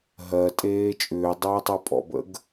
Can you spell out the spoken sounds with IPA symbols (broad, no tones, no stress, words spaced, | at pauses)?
ɦɜtʼeː t͡ʃʼʏːdˤɜjtˤɛ pʼɔ̰bə̰ɡ